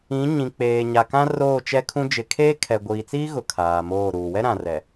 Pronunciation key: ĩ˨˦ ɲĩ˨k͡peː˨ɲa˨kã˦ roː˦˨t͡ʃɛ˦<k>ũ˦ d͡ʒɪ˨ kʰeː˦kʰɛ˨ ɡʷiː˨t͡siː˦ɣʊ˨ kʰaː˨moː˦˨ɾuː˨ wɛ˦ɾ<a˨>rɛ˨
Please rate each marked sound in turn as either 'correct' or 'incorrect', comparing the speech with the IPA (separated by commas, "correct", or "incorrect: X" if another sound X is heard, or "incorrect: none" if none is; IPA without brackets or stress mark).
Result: incorrect: kʰ, incorrect: ã˨